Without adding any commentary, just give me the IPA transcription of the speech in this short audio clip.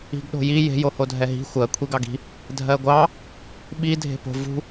i̤ɡɗo̤ji je̤ johodʱɛɦi̤ xʷɜ kʷʰiɡɑɡi̤ | dʱɜɡʷɑ | ɓi dʱe̤po̤ vṳ

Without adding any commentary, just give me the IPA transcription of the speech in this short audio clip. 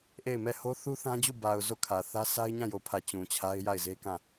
ʔe˦˨ɪ̯mɛ˦˨ ho˦ θu˦θã˦d͡ʑu˦˨ ba˨ʊ̯ zo˦˨kʰä˨θä˦ sʰa˦ɪ̯ɲã˦˨jo˨pʰä˨ t͡ɕũ˨t͡ɕʰa˦ɪ̯ ja˦˨ɪ̯ze˦kã˦˨

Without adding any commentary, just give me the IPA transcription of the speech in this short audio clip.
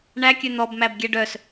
ɳækʲø n̪ɔbmæb ɡʲɛɖœs

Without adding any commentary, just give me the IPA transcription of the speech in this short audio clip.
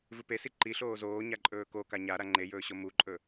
vɨpesi ǃiɬoː zoːɲaǃʼɵː koka ɲa ɾaŋ͡ǃejɵːɕo muǃʼɵ

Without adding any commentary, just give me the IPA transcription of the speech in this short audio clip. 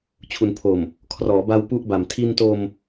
t͡ɕʰu˩˦npʰo˨˩m | kʰrɔː˩˦ba˧w pu˥˩ʔba˨˩m tʰi˧nto˧m

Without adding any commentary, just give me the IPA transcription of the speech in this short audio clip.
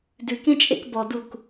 dʉkẽt͡ʃʼḛk bɔduk

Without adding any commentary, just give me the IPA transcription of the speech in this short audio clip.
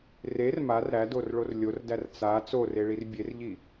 rer mar ɾædorɭor lʲordær t͡sa t͡soreɭir bʲerʎi

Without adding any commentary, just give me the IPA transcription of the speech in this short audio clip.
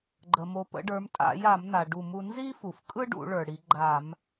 ɡ͡ǃə˩mo˩˧ pə̰˩˧ɖə˞˩˧mtʼa̰˧˩˧ja˧˩˧m n̪a˩ɖu˧˩˧mu˧ nzi˥fu˩f kʼɯ˥ɖṵ˧˩˧ ɭə˞˩ɽi˩˧ ɡ͡ǃa˧˩˧m

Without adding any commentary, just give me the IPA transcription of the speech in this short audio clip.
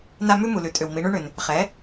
na˦ mʉ˦mu˩lʉ˩tʼʏ˩w mi˩˧ɳʉ˦ɳʏ˩n | χɛ˩˥

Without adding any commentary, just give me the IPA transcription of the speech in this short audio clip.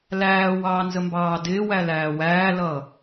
læːwɑːnzəmbɑː dɪːwælæː wæːlʌ

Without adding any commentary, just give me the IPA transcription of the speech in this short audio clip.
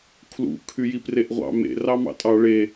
kʰlṵ kʰyjipreʔʁʷɑ̰ mḛ rɑmɑ̰tʼɑ ɭe

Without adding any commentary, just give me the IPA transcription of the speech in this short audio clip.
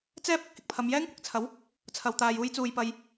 t͡sɛː˥p̚ ɪ˨k̚hɪ˨k̚pʰɐ˧m jɛː˥ŋkʷɪ˨k̚t͡sʰɐ˨˥w | t͡sʰɐ˧wt̪aː˧juː˥jt͡suː˧j pɐ˧j

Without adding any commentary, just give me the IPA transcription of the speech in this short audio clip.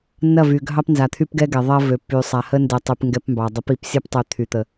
nːɐ˦˨vy˨ɡʱɑ˦pnza˨ t̪ʰy˦pɡɛ˦ɡɛ˨ ðˤɐ˦vø˨pːy˨ sˤa˨hə˦ ndɛ˨tˤy˨p ŋɡɛ˦pmbɑ˨ dˤə˨˦pi˨psʲɐ˦ptˤø˨ t̪ʰy˨t̪ə˨

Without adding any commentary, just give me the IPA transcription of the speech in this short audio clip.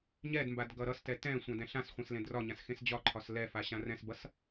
ɲɛdmbad ɡʌɾʌstɛ tɛ̃ sʷãdɛ̃ɬãsχʷẽs lẽdrɒɲãs xẽsd͡ʑɒǃʰɒs lɛfa ɕãrɛ̃sbʌs

